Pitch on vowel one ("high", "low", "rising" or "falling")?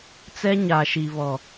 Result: high